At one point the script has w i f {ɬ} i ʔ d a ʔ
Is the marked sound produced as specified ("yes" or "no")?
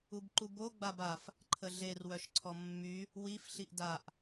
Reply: yes